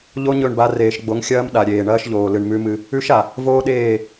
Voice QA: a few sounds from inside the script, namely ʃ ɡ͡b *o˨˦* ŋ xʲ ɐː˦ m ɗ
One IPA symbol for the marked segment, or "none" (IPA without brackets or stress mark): o˨˦